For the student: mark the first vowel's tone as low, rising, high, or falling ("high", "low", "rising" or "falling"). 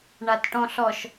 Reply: low